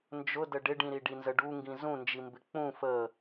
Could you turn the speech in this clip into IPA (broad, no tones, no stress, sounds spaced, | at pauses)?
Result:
n d͡ʒ ʊ d ə ɖ ɪ ɖ ĩ ɾ i ɖ i n z ə ɖ u ŋ ɡ ĩ z ũ n d͡ʒ i m b ɪ k͡p ũ f ə